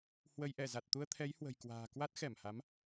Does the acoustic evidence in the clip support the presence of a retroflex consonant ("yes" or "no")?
no